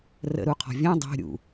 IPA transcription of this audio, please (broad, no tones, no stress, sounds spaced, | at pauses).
r ə̰ ɾ u qʰ ɔ̤ vʲ œ̃ dˤ o̤ ɾʲ ṵ